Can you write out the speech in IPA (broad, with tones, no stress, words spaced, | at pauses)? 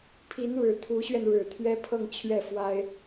pʰi˧˥nɻɻ̩˨˩ t̪ʰu˧˥ɕɥɛ˧n ɻɻ̩˨˩t̪ʰɥɛ˥ pʰɤ˥˧ŋ t͡ɕʰɥɛ˥˩ fwa˥ɪ̯